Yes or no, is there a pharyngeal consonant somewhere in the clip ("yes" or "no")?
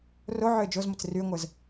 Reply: yes